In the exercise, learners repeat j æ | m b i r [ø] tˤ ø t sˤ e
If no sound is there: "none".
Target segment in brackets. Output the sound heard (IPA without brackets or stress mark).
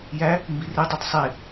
e